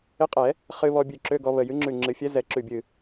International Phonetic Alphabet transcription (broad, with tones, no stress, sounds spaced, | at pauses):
ɪ˧˥ qʼ ɛ˨˩˦ | χ ɨ˧ β ɔ˧ bʲ ʉ˧˩ ǁ ø˧˥˧ ɡ ɔ˧ β ə˧˩ j ɨ˧˥ ŋ͡ǁ ʉ˧˩ ŋ͡ǁ ɨ˨˩˦ fʲ ɛ˧˥ z ɛ˨˩˦ ǁ ʉ˧˩ bʲ ɨ˧˩